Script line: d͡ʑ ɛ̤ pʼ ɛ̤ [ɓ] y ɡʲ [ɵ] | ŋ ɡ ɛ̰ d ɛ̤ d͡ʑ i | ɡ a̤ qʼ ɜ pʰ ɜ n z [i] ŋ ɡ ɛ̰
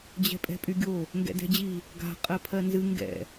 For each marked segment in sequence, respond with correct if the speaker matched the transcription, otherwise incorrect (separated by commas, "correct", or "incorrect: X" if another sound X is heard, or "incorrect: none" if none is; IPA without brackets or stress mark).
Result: incorrect: pʼ, incorrect: o, incorrect: ɨ